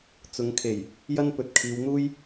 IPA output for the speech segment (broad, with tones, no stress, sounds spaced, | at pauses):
t͡s ʊ˨˧ ŋ kʰ e˨˩ j | j ɐ˥ n p ɵ˨ t̚ kʰ iː˨˧ w n̪ uː˥ j